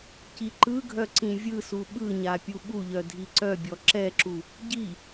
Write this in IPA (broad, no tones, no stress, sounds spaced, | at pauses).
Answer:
c i ǃ ɯ ɡʱ œ ǀ ĩ vʲ ɯ s u ɓ ɯ ɲ a pʲ u ɓ u ʎ œ dʱ i ǀ œ bʲ ɔ ǁ ɛ ǁ u | ɟ i